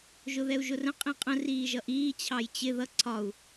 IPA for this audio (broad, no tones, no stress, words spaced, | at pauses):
ʒʊðɛu̯ʒʊrə̃ qʼĩqʼə̃ riːʒʌʔiː t͡ɕʰɑjt͡ɕɪ ðʌ ǀʰɒu̯